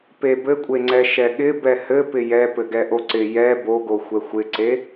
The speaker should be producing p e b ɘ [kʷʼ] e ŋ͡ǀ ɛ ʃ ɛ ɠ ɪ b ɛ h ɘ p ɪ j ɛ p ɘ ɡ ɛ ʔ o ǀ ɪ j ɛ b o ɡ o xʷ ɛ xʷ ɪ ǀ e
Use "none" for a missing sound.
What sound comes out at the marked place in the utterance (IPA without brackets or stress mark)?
kʷʼ